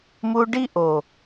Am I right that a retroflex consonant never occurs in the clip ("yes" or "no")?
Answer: no